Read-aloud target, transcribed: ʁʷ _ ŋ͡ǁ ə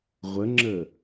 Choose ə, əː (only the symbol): ə